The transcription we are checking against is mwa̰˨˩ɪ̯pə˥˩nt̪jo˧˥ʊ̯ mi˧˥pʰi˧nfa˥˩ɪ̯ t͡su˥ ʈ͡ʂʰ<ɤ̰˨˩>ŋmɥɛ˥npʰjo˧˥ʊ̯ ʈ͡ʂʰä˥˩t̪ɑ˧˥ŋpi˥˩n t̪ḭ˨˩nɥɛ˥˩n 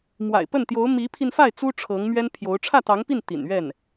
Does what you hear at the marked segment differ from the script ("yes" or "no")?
yes